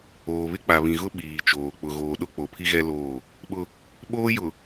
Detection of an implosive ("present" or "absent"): present